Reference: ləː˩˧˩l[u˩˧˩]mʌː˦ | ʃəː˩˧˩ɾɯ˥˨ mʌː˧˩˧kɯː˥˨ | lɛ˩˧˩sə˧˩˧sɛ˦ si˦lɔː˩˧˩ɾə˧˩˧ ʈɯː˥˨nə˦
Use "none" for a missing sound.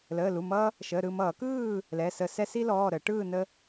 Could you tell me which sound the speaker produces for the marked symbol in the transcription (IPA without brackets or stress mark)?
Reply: u˩˧˩